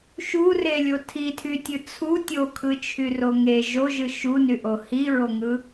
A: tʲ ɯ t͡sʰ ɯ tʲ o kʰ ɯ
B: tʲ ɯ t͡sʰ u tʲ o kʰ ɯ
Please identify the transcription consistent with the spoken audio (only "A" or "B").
B